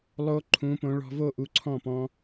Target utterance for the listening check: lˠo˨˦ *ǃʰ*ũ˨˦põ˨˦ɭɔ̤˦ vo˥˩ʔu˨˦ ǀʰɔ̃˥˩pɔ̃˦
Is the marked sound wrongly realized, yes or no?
no